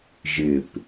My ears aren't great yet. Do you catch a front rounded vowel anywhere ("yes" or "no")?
no